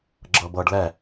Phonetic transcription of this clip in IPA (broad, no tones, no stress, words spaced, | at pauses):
ɡ͡ǁɤbɤɖ lɛ